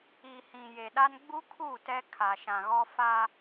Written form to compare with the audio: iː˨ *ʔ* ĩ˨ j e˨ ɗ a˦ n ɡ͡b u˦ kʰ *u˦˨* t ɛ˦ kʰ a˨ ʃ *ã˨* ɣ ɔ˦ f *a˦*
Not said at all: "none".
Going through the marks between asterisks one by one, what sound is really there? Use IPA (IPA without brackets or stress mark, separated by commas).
h, u˦˨, ã˨, a˦